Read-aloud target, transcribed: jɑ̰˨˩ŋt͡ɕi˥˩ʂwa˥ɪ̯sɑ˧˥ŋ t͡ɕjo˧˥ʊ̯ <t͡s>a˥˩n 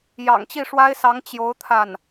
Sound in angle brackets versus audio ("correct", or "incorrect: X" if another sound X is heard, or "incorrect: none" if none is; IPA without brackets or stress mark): incorrect: t̪ʰ